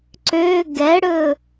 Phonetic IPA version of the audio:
ǀø ɡɛɽɵ

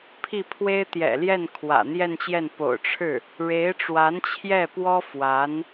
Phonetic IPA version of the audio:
pʰi˥˩ pʰwe˥ɪ̯ t̪jɛ̰˨˩ljɛ˥˩n kʰwä̰˨˩n̪jɛ˥˧nt͡ɕjɛ˥˩n po̰˨˩ʊ̯ʈ͡ʂʰɻ̩˥˩ | ɻe˧˥ɪ̯ʈ͡ʂwa˧˥nt͡ɕʰjɛ˥˩pwɔ˥ fwa˧˥n

